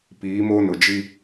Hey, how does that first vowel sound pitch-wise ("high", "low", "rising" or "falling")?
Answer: rising